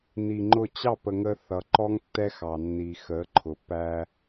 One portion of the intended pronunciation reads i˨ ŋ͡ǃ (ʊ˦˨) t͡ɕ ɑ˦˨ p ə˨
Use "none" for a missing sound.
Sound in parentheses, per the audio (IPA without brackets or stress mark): ʊ˦˨